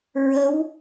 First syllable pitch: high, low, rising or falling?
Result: rising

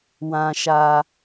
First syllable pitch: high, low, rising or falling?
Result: high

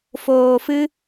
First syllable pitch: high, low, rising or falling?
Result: low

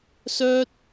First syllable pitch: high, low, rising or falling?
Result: high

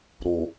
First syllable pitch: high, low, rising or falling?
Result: low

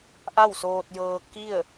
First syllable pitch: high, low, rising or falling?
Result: falling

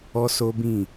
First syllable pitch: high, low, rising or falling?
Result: high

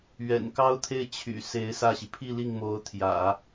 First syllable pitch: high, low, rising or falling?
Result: low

